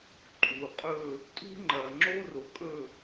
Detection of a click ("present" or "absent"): present